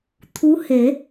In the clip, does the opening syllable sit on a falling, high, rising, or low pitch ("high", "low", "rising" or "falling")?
rising